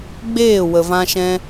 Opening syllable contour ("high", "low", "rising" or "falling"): falling